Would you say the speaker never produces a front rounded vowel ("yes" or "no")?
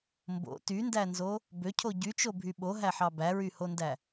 no